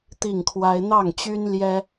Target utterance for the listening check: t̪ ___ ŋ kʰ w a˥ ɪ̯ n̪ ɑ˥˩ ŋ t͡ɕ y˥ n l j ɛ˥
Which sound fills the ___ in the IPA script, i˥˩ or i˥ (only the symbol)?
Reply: i˥˩